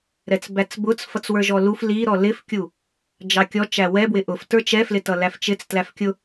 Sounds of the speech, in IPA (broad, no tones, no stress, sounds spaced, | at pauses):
ɾ ɛ t͡s b æ t͡s b ʊ t͡s f ʌ t͡s w ə˞ ʒ ɔ l u f l i ɾ ɔ l ɪ f kʲ u | d͡ʒ ɑ kʲ ɔ t͡ʃ æ w ɛ b w ɪ ʔ ʊ f t ə˞ t͡ʃ ɛ f l ɪ t ʌ l æ f t͡ʃ ɪ t͡s t l æ f kʲ ʊ